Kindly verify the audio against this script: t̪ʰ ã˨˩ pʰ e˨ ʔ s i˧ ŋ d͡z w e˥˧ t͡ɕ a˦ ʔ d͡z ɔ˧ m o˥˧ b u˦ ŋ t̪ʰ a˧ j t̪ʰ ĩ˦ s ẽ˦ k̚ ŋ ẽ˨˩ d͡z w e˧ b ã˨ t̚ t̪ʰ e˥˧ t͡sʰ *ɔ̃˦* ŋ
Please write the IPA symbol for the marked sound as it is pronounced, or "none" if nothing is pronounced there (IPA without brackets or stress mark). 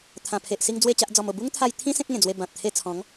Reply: ɔ̃˨˦